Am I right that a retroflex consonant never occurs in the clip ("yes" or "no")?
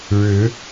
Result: no